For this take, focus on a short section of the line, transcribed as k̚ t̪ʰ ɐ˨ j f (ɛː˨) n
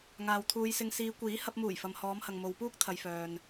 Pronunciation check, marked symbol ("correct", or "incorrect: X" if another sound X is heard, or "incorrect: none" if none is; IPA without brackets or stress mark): incorrect: œː˨